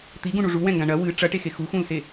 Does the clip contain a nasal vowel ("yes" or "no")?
yes